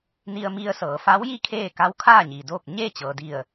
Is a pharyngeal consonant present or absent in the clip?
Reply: absent